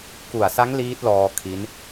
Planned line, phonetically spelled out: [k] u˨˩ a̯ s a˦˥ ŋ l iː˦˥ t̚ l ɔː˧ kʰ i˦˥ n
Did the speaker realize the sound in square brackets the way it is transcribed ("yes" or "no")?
yes